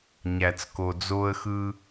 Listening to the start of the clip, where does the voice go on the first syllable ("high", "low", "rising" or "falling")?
low